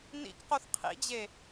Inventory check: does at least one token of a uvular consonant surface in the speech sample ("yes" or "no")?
yes